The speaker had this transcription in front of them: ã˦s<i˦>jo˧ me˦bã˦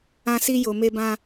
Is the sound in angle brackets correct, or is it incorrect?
correct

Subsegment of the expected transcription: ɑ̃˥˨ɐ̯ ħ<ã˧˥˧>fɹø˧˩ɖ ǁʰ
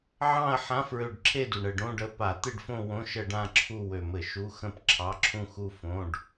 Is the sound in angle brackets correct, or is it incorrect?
correct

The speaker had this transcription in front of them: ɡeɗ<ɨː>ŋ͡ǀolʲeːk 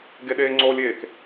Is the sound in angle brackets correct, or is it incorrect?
incorrect: eː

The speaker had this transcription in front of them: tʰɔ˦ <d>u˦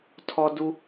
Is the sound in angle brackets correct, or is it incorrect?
correct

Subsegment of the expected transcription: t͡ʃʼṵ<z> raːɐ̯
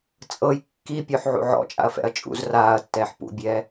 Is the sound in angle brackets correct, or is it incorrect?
correct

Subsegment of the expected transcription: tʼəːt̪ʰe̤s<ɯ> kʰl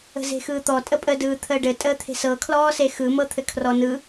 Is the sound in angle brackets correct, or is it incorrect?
incorrect: ɤ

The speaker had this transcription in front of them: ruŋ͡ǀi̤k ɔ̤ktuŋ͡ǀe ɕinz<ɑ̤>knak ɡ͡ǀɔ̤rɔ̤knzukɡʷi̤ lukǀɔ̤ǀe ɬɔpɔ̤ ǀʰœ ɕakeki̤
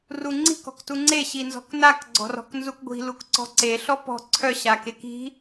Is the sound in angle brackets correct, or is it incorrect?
incorrect: ɔ̤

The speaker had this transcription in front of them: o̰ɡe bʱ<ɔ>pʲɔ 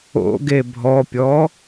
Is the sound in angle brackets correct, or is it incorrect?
correct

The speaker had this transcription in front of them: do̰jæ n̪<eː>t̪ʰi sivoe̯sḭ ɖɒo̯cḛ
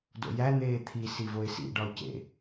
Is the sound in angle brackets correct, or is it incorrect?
correct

